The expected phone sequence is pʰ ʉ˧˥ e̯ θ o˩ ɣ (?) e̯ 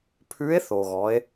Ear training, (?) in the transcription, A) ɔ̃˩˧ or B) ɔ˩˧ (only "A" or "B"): B